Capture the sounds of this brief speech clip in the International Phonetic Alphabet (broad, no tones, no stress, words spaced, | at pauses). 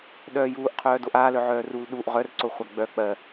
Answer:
ɗœːjuːʔqʰœː doʔaːlœ ʕœːrul ɗuʔ ʁœrǀoχʷa ɡ͡bœ k͡pɜ